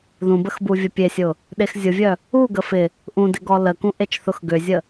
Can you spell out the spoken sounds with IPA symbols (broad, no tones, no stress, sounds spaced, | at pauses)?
ð ũ b ə x b u vʲ ə pʲ e sʲ ʊ | ɗ e x zʲ ʊ vʲ œ | u ɡ ə f ɪ | ʔ ũ d ɪ ɡ ɔ l ə k ũ ʔ e t͡ʃ θ ʊ x ɡ ʏ zʲ ə